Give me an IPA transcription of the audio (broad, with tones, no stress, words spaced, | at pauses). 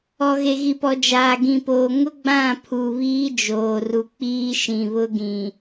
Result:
ɔ˨ɣe˨ ɣi˨pɔ˨d͡ʒaː˨ ɡĩ˨poː˨ ŋʊ˦ ɡ͡bã˦˨ pʰu˨βiː˦d͡ʒoː˨ru˨ k͡piː˦ʃĩ˨βʊ˦ɡĩ˨